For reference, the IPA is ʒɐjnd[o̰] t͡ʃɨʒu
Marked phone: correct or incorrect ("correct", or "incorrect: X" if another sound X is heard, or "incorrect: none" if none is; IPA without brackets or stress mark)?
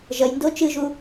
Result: incorrect: o